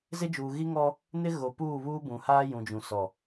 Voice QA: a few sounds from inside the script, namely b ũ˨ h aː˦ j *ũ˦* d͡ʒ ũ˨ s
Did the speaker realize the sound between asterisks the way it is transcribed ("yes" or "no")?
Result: no